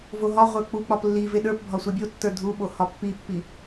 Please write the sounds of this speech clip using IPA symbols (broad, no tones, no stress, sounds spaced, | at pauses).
v o ɦ ɒ ʁʷ ə˞ k͡p u k͡p ɒ p lː i v e ɗ ə˞ p bʱ ɒ sʷ e bʲ o tː ə˞ dʱ u ɓ o h ɒ pː i pː i